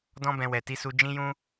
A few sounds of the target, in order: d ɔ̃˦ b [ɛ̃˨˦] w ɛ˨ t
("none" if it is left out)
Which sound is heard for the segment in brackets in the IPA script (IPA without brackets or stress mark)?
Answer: ɛ̃˧